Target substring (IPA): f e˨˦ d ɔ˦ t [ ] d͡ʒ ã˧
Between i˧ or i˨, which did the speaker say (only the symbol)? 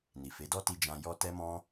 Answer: i˧